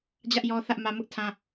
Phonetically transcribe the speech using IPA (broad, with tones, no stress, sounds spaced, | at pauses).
d͡ʑ ä˦ ʔ j ɔ˦ θ ä˦ ʔ m ä˦ m ʊ˦ ʔ tʰ ã˦